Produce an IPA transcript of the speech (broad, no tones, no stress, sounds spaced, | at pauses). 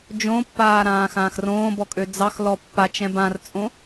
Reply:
d͡ʒ õ pː aː ɾ ãː x ãː x r õː b ɔ kʼ ø d͡z ɑ x l ɔ pː a t͡ʃ ɛ̃ b ã r t͡sʼ õ